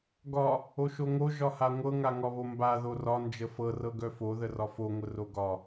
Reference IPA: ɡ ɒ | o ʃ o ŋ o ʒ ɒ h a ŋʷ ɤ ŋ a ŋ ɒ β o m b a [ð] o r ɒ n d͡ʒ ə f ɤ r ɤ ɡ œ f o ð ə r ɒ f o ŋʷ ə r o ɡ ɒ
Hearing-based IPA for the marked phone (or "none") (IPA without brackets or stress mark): ð